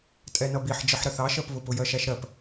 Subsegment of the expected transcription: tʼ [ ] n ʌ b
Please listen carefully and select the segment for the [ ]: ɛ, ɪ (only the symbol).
ɛ